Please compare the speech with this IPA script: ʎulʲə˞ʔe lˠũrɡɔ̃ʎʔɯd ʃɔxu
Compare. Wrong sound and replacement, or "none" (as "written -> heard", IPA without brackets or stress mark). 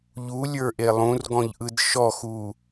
none